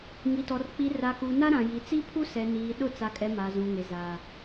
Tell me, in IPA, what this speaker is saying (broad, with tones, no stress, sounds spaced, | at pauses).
ŋ i˨ t ɔ˨ r k͡p i˨ r a˨ k u˨ n a˦ ɾ ã˨ j i˨ t͡s i˦ pʰ u˦ s ɛ˨ n iː˨ ɗ ʊ˦˨ t͡s a˨ kʼ ɛ˨ m a˨ z ũ˨ ŋ e˨ z aː˨